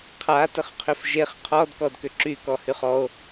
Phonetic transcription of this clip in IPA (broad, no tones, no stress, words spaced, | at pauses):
qʰa təχqʰʏfʒeχ qʰɔd kɔdkʏǁy kɔhyχɔo̯